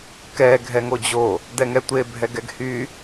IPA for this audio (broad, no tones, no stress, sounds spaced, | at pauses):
k ɛ ɡʱ ɛ ŋ o d͡ʑ o | d ɛ ŋ ɛ tʷ e bʱ ɛ ɡ ɛ ɡ h y